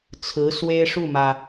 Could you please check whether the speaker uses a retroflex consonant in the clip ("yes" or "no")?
yes